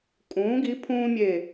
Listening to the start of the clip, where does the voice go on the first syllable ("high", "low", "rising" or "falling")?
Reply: rising